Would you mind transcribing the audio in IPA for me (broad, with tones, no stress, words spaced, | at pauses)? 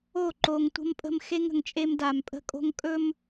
o˦˨ ǃo˨ŋ tʷə̤˦mpʼə̤˦m xe˦ŋə̤˨ŋ t͡ʃʼe˦mda˨mpʼə̤˦kʼo̤˦ŋ kʼɵ˦m